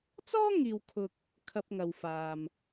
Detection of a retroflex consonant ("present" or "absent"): absent